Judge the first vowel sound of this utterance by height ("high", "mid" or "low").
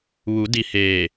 high